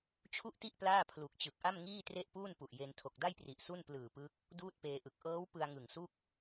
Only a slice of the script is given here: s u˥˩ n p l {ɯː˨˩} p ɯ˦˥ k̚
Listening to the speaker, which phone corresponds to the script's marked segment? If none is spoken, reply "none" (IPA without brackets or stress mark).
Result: ɯː˨˩